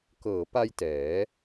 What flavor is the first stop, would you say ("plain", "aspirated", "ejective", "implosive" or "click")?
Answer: plain